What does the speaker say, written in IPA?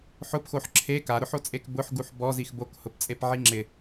ħ ʊ p x o ħ ǁʰ e k a ɾ ʊ ħ o t͡sʼ e k b ʊ ħ ɡ u ħ b ɔ z i x b o k h ʊ p t͡sʼ e p ʕ i ŋ͡ǁ ɪ

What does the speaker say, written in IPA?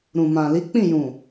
ɾ ũ˨ m ã˨ l i˨˦ k͡p ĩ˦˨ j ũ˨

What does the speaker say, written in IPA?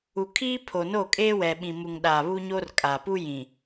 u˨ kʰ iː˦ pʰ o˨ n o˦˨ kʼ eː˦ w ɛ˨ ɓ ĩ˨ m u˨ ŋ ɗ a˨ β u˦ ɲ o˦ r kʼ a˨ p u˦ j ĩ˨

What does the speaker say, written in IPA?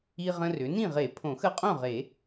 i˦ ʁ ə̃˦ r ʏ˩˥ n ĩ˥˨ ʁ e˨˩˦ pʰ õ˨˩˦ x ə˦ qʼ õ˥˨ ʁ e˨˩˦

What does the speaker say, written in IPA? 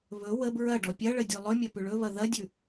β ɵ w ə b ɹ ɐ ɖ ɔ pʲ ɐ ɭ ə dʲ ʉ lˠ ɵ mʲ ɐ p ʉ ɭ ɵ β ɐ ð ɐ dʲ ʉ

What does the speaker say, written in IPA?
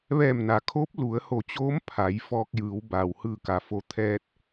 ʋ ɛː˧˩ m n a˩ kʰ oː˧˥ p̚ l u˩˧ ə̯ h o˧˩ t͡ɕ oː˧˥ m pʰ a˩˧ j f ɔː˧ k̚ j ɯː˩˧ w b aː˩ w h ɯː˧˩ k a˩ f o˧ t̪ʰ ɛː˧ t̚

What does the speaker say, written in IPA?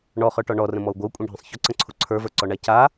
ɳ ɔ χ ə˞ ʈ ɔ ɳ ɔ r ə̃ m ɔ u̯ ɡʷ ə u̯ kʷʼ ĩ ɖʱ ə̃ sˤ ç ʊ ǀ ə̃ ǀʰ u ǀʰ ə˞ v ə˞ ǀ ɔ ɳ a c a

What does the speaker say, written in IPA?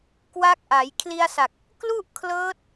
k w a˦˥ k̚ ʔ a˩˦ j kʰ l i˧ a̯ s a˨˩ k̚ | k l u˥˩ ʔ kʰ l ɤː˦˥ t̚

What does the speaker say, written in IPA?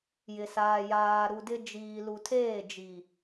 j ɪ˨ s aː˨ j aː˨ ɾ u˨ d ɪ˦ d͡ʒ iː˨ l u˨ tʰ eː˦˨ d͡ʒ i˨

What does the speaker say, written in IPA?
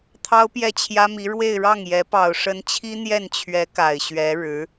t̪ʰ ɑ˥ ʊ̯ p j ɛ˥˩ t͡ɕʰ j ä˥ m i˧˥ ɻ w e˥˧ ɪ̯ ɻ ɑ˥˩ ŋ j ɛ˧˥ p ɑ˨˩ ʊ̯ ʂ ə˧˥ n t͡ɕʰ i˥ n̪ j ɛ˥˩ n t͡ɕʰ ɥ ɛ˧˥ k a˨˩ ɪ̯ ɕ ɥ ɛ˧˥ ɻ ɻ̩˧˥

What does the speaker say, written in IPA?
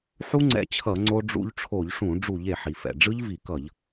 ħ u˦˥ ŋ͡ǀ ɛ̰˧ t͡ɕʰ ʌ˧˩˧ ŋ͡ǀ o˧ ɖ͡ʐ ṵ˧ ʎ ʈ͡ʂʰ o˧˩˧ ʎ ʂ ũ˧˩˧ ɖ͡ʐ u˧˩˧ ʎ e˩ ħ i˩ f ɛ̰˩ ɖ͡ʐ ɯ˦˥ ʎ v i˧˩˧ k ʌ˧˩˧ ʎ

